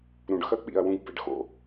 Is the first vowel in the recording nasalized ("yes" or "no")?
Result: yes